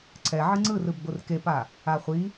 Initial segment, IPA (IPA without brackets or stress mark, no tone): ǀʰ